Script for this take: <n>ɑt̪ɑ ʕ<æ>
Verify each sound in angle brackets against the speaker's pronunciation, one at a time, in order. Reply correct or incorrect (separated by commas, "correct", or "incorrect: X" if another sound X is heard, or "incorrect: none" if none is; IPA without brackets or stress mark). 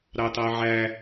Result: incorrect: ɾ, correct